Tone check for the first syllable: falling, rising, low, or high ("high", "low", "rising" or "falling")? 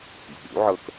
rising